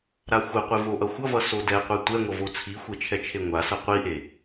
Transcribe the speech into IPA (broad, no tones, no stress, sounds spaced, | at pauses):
ɾ a xʷ ɛ qʷ e v o ʔ ʌ xʷ ʌ v ʌ s o d ɛ qʷ ɛ tʷ ɛ ŋʷ ʌ v o t͡sʰ i xʷ e t͡ʃʰ ɛ t͡ʃʰ e ŋʷ a s ʌ qʷ i ʔ e